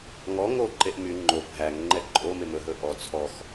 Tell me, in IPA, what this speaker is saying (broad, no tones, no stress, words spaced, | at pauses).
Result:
ŋɔ ŋoǃeʔ my ŋ͡ǃo bʱæŋ ŋ͡ǃɛǃʼome mɵɦɵ ʔɔ t͡sʰɔx